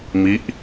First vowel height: high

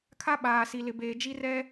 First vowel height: low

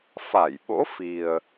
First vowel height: low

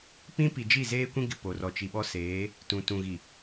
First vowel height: high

